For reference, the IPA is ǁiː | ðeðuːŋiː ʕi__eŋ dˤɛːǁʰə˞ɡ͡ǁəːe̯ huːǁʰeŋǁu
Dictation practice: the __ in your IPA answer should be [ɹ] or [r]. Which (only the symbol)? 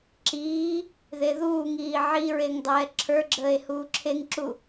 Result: ɹ